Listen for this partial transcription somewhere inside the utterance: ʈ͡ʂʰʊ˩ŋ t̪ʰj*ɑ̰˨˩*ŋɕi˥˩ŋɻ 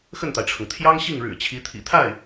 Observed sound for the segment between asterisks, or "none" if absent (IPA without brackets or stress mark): ɑ˥